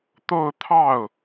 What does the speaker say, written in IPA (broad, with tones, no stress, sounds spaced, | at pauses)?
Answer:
t̪ o˥˧ ʊ̯ t̪ʰ ɑ˥˩ ʊ̯